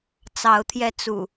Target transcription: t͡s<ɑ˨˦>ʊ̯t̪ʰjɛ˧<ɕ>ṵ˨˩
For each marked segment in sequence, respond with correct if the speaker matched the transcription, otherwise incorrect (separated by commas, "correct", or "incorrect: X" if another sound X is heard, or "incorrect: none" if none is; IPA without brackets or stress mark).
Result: correct, incorrect: t͡s